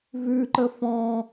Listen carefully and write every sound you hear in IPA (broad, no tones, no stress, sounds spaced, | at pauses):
v ʉ ǃ ə f ɔ̃